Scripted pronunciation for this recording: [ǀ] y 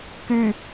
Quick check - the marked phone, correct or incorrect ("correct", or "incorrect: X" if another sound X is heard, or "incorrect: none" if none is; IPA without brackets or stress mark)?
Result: incorrect: k